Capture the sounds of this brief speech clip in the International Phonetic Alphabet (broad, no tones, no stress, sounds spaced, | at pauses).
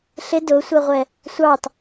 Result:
ɬ ɪ d ʊ sʷ ɛ ʁʷ ɛ | sʷ ɑ t